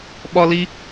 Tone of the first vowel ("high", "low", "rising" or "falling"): high